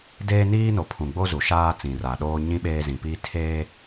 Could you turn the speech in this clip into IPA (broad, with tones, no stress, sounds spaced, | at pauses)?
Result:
d eː˦ n iː˦ n o˨ pʰ ũ˨ ɡ͡b o˦ z u˨ ʃ aː˦ t͡s ĩ˨ r a˨ ɗ oː˦ ɲ ĩ˦ ɓ eː˦ z ĩ˨ p iː˦ tʰ eː˦